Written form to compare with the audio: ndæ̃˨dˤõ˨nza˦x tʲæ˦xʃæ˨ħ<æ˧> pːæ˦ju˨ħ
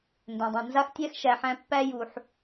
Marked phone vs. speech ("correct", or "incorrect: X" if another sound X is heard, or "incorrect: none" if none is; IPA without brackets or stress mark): incorrect: æ̃˧